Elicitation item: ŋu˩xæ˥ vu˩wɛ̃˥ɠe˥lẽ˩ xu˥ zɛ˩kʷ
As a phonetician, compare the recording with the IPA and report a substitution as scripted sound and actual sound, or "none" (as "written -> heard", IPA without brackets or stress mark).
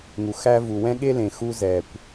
none